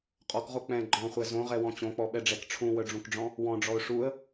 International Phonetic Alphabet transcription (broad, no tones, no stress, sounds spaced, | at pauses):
qʼ ɔ k ʁ o k͡p ɛ̃ ɡ͡ǃ ɔ̃ χʷ ɛ z õ ʁ ɛ w ɔ̃ t͡ɕ õ k͡p ɔ ɓ ɛ ɖ͡ʐ ɛ k ʈ͡ʂʰ ũ w œ ɖ͡ʐ ũ k ɖ͡ʐ ɔ̃ | w ɔ̃ ɖ͡ʐ ɔ ʊ̯ ʂ u ə̯